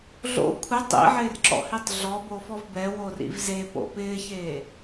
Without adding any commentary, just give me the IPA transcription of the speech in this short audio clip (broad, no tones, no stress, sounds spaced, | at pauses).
ɮ o̰ kʷʰ ɪ tˤ ḭ ʕ ɪː r ǁ ɔ̰ h i tˤ ɮ ɔ b o f ɔ v b ɛ w o r ḭ v z e p o̰ p ɪː ç eː